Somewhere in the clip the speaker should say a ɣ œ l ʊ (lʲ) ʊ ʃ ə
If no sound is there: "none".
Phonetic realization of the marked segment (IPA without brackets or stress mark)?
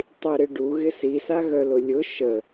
lʲ